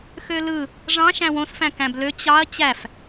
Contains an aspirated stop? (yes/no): no